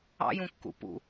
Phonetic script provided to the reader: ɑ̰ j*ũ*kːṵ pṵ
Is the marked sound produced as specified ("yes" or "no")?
yes